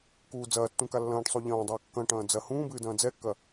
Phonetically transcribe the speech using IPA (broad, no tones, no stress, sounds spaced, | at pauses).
k uː d͡z ɐː tː ũ k a lː ɐ̃ː ʈ sˤ u ʎ ɐ̃ː dˤ ɐː kː ɐ̃ ʈ ɐ̃ː d͡z ɐ h ũː b ɨː d ɐ̃ː d͡z ɛ kː ɐ